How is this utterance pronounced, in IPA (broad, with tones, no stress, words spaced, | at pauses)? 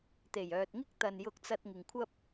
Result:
t̪e˨˩jœː˨t̚ŋɪ˥k̚ t̪ɐ˨njʊ˧k̚t͡sɐ˧t̚ ŋɪ˨ŋkʷʰɐ˥p̚